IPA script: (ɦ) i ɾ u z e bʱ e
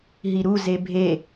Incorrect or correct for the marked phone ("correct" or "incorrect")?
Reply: correct